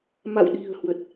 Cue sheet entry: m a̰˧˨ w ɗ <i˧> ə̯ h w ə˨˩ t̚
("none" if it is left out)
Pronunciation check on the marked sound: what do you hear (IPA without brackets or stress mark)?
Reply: i̤˨˩